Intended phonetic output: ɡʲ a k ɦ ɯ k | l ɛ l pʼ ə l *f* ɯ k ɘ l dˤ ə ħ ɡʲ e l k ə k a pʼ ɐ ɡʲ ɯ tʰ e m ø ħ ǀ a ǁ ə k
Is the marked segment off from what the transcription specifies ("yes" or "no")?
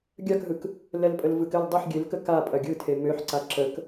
yes